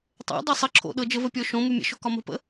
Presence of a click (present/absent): present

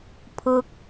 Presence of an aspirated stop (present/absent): present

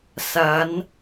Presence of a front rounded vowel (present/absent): absent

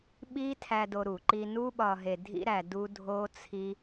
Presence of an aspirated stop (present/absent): present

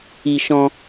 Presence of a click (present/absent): absent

